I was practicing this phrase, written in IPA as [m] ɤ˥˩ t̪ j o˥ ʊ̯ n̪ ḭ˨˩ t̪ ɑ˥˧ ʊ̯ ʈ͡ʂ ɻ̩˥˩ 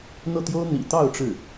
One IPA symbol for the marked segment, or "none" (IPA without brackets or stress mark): n̪